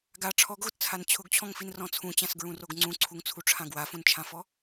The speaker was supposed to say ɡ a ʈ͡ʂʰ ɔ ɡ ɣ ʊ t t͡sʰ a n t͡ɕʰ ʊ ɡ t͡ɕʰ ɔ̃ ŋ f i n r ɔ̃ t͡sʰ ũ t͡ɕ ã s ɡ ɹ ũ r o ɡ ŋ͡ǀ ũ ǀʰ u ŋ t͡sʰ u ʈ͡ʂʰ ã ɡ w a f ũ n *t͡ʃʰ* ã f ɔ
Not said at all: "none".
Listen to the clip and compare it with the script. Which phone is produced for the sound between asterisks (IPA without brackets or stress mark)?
t͡ʃʰ